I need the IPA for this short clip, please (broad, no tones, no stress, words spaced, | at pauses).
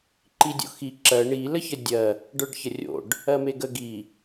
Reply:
ǃidʲo̰xi ǁɜ ɳi ləçədʲɜ | ɖə˞ɖçərʲo̰ɖ | ɜmeɡə ɡi